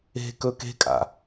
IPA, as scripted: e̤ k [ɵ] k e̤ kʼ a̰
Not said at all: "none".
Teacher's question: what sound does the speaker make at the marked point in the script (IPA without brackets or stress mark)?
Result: ɵ